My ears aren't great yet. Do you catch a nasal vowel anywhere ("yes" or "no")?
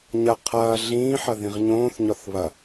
yes